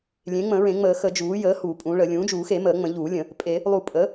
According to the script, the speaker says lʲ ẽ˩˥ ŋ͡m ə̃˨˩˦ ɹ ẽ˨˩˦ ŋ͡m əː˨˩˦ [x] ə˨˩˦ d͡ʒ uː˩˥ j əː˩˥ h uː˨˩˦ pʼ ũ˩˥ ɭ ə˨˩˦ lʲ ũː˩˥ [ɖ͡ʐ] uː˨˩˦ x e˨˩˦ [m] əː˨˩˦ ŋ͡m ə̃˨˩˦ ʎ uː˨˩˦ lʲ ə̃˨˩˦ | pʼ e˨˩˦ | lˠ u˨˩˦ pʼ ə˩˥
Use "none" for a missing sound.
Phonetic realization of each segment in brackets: x, d͡ʒ, m

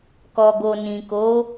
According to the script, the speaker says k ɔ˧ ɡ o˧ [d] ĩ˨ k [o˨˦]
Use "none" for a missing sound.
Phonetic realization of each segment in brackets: n, o˨˦

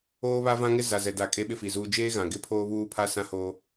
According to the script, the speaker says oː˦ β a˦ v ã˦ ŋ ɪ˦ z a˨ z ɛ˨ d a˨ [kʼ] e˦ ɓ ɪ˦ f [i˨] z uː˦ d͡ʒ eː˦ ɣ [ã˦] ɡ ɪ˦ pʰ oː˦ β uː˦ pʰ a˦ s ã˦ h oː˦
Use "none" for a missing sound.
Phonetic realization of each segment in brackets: kʼ, i˨, ã˨

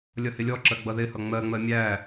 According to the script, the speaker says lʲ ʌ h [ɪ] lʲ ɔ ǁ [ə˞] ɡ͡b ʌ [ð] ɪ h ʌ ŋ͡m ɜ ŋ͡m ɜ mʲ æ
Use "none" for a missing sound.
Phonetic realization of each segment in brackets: ɪ, ɜ, ð

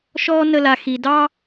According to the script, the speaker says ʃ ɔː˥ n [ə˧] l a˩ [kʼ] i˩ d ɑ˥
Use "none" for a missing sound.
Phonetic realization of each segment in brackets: ə˧, x

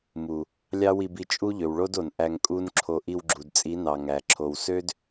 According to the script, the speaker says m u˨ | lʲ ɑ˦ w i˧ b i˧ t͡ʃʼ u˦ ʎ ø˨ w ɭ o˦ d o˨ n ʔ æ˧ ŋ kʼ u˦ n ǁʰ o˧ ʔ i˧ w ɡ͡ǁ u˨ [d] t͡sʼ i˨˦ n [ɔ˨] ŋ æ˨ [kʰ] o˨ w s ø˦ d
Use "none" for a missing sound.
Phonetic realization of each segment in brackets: d, ɑ˨, ǁʰ

